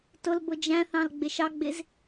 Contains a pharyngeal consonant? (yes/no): no